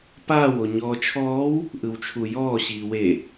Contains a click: no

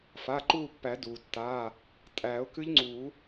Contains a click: yes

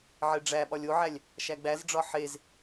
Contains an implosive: yes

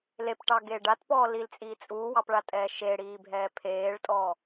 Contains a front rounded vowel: no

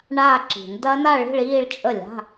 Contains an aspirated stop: no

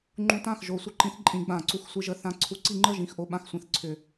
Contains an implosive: yes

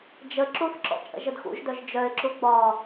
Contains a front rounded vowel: yes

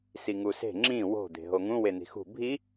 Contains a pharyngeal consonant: no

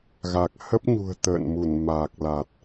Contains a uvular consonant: no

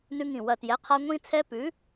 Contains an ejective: no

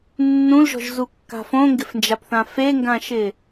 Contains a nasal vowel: yes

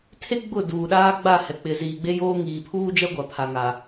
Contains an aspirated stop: yes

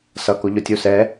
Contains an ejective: no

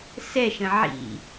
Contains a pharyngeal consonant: yes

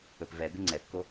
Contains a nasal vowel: no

